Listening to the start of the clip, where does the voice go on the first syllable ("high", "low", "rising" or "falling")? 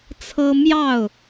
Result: high